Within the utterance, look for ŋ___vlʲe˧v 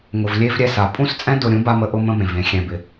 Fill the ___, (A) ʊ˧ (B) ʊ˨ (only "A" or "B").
B